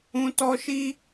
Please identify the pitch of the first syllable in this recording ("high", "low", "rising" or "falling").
high